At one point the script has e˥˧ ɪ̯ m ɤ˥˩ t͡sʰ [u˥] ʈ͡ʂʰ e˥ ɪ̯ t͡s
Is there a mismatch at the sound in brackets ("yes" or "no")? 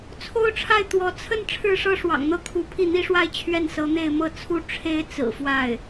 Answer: no